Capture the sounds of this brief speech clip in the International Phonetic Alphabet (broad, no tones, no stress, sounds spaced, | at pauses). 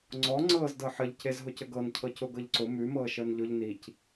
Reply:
ŋ͡ǀ ɔ ŋ͡ǀ ɤː z d ɤ ħ ə ʎ c e z ɦ ʊ c ə ɡ ɤ n cʰ ɤ c ʊ ɡ ɤ ʎ ǀ ʊ m ʉ m ɤː ʃ əː n ʎ ʊ ʎ n i c